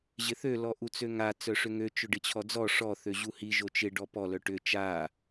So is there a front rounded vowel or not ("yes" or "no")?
yes